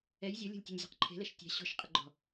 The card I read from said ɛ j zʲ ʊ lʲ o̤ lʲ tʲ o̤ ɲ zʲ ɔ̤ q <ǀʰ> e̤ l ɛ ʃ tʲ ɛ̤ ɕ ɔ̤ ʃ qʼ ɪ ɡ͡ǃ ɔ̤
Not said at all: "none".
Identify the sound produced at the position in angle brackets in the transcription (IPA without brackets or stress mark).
ǃʰ